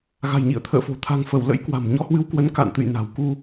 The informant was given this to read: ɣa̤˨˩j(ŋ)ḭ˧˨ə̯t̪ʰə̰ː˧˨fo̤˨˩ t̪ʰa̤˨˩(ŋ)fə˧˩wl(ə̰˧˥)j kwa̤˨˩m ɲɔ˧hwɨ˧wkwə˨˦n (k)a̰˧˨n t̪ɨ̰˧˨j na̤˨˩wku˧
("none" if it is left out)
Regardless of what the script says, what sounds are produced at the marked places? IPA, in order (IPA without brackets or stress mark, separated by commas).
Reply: ɲ, ŋ, ə̰˧˥, k